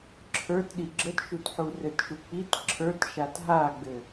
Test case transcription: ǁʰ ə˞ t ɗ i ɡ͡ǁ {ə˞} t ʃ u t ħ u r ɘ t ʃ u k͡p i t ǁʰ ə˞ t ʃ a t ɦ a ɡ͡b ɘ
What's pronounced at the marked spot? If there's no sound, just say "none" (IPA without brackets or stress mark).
ə